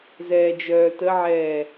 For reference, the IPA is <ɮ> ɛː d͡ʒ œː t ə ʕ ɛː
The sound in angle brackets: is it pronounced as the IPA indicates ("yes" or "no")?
no